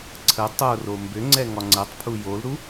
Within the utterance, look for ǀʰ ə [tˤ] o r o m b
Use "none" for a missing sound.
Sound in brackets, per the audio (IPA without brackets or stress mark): tˤ